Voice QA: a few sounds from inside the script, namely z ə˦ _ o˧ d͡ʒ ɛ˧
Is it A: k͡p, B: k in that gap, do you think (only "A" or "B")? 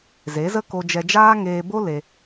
B